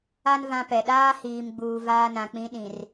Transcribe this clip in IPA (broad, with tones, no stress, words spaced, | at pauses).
a˦n vã˦pɛ˨ ɗaː˦ hiː˨mɡ͡buː˨ vaː˦nã˨k͡pĩ˦ ɗĩ˨r